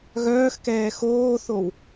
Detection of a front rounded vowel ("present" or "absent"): present